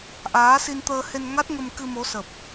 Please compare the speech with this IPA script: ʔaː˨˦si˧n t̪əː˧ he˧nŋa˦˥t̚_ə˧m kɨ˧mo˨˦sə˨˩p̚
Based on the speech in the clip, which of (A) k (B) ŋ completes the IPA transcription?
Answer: B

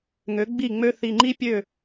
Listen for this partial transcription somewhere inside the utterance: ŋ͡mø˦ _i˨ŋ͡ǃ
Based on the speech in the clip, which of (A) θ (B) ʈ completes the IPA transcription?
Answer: A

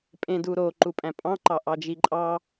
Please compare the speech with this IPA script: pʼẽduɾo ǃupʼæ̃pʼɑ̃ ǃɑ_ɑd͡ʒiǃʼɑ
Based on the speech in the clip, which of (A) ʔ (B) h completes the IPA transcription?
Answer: A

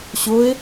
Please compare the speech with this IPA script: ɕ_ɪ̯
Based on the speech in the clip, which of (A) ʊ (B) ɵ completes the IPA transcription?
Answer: A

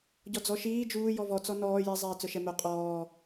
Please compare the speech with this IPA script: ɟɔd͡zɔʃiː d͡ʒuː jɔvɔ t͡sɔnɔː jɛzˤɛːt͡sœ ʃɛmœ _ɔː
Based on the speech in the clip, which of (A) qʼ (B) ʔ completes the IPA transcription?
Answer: A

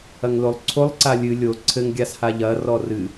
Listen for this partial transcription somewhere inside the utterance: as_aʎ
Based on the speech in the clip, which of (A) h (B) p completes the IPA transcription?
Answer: A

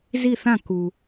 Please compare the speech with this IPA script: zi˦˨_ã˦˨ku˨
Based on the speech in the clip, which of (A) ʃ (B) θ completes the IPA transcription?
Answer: B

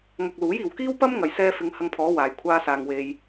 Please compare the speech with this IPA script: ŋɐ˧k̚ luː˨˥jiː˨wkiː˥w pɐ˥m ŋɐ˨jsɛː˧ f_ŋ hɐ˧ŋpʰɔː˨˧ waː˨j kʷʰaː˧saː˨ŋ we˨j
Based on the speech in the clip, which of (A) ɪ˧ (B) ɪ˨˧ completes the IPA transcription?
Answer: B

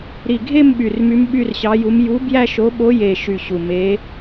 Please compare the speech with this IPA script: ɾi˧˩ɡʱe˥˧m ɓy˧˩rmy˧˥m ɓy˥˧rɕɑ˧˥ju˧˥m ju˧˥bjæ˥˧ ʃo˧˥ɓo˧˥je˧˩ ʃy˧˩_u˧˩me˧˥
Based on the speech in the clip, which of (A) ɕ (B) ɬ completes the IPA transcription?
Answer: A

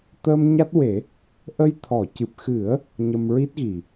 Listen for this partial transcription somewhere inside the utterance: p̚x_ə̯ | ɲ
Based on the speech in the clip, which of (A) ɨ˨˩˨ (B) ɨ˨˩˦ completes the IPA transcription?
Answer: B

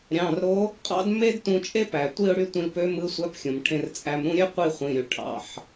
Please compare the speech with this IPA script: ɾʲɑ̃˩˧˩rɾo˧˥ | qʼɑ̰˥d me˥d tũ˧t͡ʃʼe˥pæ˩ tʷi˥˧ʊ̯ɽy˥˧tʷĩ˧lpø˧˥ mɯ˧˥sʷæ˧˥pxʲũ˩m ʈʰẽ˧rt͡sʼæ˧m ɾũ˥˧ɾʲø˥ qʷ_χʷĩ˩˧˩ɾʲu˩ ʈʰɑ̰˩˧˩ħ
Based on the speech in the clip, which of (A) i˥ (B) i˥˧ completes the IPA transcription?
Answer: B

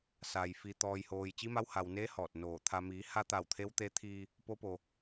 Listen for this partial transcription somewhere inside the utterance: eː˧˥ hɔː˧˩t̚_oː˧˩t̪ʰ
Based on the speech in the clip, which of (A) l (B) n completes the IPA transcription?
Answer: B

